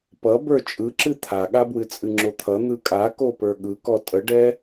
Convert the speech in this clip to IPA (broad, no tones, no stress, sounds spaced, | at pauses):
p ʌ b ə˞ t͡ʃʼ ɯ ǁ ɨ t̪ʰ a ɠ a b w ɨ t͡sʼ ɨ ŋ͡ǁ o t̪ʰ ʌ n̪ ɯ kʼ a k o p ə˞ ɠ ɯ k ɔ tʼ ə ɖ ɛ